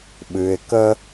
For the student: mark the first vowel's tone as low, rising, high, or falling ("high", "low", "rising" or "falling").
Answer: low